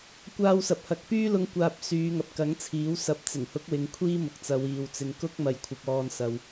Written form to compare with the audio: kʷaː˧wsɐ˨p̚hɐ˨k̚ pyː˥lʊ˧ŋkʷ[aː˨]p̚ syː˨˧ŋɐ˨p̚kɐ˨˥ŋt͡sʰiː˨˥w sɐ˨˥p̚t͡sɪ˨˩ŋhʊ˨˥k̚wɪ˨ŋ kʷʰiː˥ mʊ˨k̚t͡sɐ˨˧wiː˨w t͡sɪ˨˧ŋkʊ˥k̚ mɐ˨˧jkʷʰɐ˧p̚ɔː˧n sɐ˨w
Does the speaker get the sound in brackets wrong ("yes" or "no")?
no